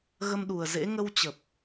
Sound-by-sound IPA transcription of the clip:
ɣ ə˧ m ɗ u˨˩ ə̯ z ḛ˧˥ ŋ ə˧ w t͡ɕ ə˨˩ p̚

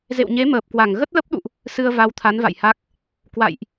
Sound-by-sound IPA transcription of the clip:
z ḛ˧˨ w ɲ e˨˦ m əː˨˩ p̚ k w a˧˩ ŋ ɣ ə˦˥ t̚ l ə˦˥ p̚ ɗ ṵ˧˨ ʔ | s ɨ˧ ə̯ v a˨˦ w t̪ʰ a˨˦ n v a̰˧˨ j h a˦˥ k̚ | k w a̰˧˨ j ʔ

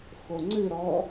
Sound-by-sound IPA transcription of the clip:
x o ŋ͡ǀ ɨ ɾ ɔ

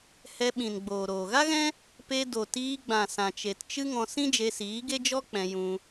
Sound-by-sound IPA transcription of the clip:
h ɛ˧ ɓ ĩ˨ n ɡ͡b oː˨ ɾ oː˨ ɣ a˦ ɣ ɛ̃˦ | p e˧ d o˨ t iː˧ ɡ͡b ã˨ s ã˨ t͡ʃ e˨ t t͡ʃ ɨ˦ ŋ ɔ̃˧ s ĩ˦ d͡ʒ e˧ s iː˨˦ ɡ e˦ d͡ʒ ɔ˦ k͡p ɛ̃˧ j ũ˧

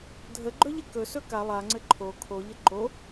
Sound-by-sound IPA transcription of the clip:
dʱ ə ɡ͡ǃ ɵ ʎ ɘ k ɵ s ɵ k a lˠ a ŋ͡ǀ ɘ ǃʰ o kʰ o ʎ ə ǃ o

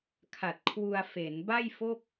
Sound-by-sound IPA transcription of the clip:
kʰ a˨˩ t̚ kʰ w u˧ a̯ f e˩˦ n b a˥˩ j f o˥˩ k̚

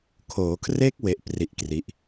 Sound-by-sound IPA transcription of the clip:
kʰ oː˩˦ kʰ r e˦˥ k̚ w e˦˥ ʔ p r i˥˩ ʔ k r i˦˥ ʔ

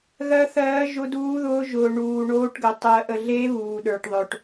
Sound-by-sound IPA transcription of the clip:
ɣ ɜ˦˥ θ ɜː˦˥ ʒ ʊ˦˥ d uː˦˥ ð ʊː˦˥ ʒ ʊː˧ ɳ uː˧ ɳ oː˦˥ ʈ ɡ ə˧ tˤ ɜ˧ ʔ ə˧ ɮ e˦˥ β uː˧ ɗ ə˞˧ ʈ ðˤ œ˧ ʈ

